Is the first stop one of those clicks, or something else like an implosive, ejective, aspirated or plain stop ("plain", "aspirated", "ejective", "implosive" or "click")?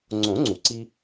click